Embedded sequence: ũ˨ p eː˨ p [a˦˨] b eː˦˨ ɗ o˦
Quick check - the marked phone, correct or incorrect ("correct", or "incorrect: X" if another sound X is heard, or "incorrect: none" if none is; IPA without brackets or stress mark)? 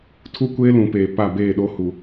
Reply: correct